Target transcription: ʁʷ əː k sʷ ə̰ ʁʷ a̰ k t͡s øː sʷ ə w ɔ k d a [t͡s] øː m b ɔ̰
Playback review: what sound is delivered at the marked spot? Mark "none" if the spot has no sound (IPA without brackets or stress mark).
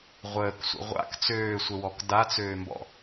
t͡s